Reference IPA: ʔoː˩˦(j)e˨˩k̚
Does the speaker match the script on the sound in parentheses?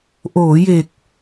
yes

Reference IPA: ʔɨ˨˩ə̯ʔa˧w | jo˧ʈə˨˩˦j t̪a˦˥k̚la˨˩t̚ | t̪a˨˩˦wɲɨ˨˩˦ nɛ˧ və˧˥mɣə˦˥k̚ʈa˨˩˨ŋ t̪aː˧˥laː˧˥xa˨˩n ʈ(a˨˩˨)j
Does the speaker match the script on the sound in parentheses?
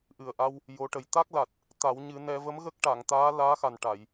yes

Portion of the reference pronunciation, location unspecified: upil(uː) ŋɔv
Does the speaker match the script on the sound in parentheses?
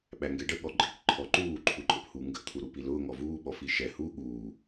no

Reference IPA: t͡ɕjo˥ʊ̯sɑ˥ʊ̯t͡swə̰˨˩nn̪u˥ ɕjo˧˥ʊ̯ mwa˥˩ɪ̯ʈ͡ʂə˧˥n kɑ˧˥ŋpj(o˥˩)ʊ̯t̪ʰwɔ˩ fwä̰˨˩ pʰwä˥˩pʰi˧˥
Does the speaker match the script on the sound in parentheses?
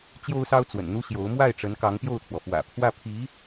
yes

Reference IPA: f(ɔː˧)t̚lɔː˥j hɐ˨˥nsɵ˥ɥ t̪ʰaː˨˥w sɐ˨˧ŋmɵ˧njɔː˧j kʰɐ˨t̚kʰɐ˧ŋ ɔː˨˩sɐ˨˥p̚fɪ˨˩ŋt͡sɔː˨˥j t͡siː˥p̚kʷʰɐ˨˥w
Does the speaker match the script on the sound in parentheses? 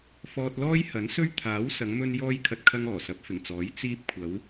yes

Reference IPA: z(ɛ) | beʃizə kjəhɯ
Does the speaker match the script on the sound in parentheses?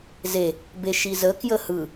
no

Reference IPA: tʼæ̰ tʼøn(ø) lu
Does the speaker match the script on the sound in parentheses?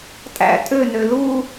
yes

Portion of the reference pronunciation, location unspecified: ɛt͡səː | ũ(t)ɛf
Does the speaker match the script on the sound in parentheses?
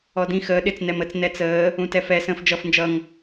yes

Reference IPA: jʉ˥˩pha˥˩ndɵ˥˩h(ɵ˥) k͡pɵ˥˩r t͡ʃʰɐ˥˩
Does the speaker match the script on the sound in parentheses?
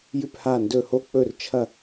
no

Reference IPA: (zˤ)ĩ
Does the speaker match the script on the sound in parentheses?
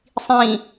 no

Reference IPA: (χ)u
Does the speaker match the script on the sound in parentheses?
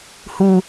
no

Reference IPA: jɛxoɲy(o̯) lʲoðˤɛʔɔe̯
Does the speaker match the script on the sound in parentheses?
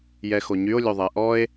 yes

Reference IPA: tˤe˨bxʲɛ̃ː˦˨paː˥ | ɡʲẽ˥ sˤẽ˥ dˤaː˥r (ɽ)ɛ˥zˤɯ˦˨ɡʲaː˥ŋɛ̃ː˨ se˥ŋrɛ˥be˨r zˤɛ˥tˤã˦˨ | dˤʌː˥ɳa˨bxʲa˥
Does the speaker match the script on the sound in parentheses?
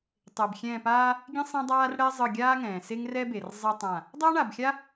yes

